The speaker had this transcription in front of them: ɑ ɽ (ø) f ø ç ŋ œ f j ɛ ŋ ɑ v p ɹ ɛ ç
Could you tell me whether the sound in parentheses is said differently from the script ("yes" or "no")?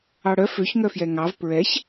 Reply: yes